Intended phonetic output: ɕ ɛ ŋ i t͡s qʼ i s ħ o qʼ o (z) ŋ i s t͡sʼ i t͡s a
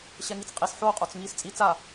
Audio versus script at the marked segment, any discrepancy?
yes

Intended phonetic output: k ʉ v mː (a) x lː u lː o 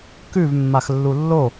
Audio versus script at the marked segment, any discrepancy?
no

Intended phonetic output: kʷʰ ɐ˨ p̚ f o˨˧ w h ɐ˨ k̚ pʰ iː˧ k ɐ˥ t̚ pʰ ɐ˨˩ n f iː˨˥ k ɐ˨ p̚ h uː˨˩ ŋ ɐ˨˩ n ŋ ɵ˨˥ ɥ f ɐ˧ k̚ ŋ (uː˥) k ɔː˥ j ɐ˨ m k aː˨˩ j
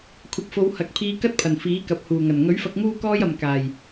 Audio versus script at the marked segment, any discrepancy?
no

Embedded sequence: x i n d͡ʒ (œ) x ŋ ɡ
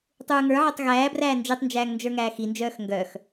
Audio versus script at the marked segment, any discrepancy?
yes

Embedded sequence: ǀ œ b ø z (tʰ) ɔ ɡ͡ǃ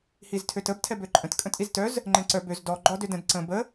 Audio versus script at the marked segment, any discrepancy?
yes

